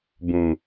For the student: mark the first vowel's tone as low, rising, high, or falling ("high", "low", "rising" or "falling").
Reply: low